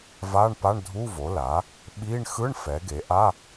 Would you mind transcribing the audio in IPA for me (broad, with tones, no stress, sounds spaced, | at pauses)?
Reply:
v a˧˥˧ ɳ p a˧˥˧ ɳ dʱ u˧˥˧ v o˩˥ l a˩˥ | ɓ i˧˥˧ ɳ x ɯ˧˥˧ ɳ f ɛ˩˥ ɡ e˩˥ ʔ a˧˥˧